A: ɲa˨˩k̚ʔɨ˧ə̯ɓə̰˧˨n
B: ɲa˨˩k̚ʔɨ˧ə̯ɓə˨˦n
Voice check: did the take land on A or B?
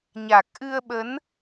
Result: B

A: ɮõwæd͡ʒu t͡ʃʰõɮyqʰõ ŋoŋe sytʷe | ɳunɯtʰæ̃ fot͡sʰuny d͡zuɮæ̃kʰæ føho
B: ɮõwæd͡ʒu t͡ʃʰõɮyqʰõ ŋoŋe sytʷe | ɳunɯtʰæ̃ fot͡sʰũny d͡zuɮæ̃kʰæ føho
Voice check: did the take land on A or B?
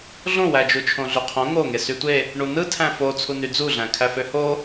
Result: A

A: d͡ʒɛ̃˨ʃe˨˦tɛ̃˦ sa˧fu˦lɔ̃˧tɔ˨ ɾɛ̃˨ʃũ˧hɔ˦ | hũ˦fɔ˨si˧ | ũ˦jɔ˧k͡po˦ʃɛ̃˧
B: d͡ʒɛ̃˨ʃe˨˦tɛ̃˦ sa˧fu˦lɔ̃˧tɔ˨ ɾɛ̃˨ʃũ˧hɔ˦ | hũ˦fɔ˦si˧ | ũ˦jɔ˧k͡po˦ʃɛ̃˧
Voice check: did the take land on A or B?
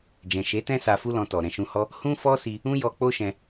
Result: B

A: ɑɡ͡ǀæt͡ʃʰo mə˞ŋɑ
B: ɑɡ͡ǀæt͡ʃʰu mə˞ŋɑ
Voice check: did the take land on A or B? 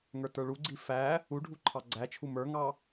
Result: B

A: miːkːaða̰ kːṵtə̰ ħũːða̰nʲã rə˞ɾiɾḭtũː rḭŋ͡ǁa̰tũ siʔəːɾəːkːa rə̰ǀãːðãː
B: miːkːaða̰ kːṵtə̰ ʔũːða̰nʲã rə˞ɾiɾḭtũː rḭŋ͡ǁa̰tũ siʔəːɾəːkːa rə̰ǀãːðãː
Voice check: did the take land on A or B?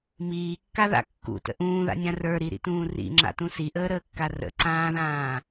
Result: B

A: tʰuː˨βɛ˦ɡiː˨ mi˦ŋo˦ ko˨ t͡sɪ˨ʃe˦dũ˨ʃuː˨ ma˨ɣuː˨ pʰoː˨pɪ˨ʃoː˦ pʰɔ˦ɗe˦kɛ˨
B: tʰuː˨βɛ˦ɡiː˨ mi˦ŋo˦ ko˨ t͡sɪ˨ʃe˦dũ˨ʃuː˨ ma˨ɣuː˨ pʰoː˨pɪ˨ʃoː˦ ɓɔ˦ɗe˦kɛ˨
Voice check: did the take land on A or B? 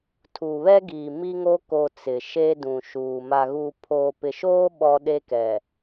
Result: B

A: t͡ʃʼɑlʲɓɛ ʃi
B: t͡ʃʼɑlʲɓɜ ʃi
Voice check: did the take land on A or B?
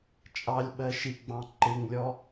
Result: B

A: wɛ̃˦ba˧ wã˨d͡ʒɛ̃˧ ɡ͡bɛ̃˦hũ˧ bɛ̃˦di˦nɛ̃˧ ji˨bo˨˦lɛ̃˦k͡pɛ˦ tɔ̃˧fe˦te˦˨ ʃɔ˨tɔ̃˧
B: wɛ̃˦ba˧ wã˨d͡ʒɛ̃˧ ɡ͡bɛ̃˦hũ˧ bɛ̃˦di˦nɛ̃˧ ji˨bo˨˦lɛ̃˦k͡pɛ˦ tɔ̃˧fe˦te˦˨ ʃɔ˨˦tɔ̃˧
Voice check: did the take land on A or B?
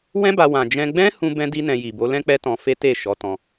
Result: B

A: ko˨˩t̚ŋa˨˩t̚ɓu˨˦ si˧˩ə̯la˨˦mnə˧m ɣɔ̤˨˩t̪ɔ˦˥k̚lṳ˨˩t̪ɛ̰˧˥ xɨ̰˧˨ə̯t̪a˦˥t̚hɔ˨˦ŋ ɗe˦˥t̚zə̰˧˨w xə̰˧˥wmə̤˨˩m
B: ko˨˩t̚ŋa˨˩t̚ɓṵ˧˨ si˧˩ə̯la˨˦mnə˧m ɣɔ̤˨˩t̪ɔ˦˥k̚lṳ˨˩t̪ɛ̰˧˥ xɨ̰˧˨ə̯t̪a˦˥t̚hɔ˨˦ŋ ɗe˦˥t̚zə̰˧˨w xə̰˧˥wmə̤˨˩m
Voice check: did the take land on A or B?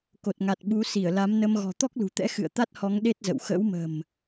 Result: A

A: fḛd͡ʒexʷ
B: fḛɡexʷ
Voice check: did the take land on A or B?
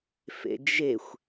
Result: A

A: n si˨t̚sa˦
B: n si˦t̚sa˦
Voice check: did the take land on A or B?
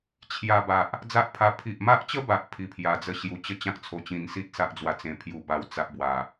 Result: B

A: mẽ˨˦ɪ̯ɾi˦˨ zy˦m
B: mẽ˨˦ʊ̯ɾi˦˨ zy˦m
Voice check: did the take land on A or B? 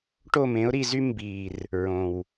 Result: B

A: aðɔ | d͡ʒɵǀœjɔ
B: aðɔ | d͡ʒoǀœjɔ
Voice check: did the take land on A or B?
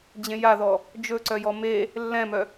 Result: A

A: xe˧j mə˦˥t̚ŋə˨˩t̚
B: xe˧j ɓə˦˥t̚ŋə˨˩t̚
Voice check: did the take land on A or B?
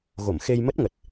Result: A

